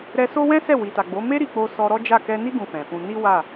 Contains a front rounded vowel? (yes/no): no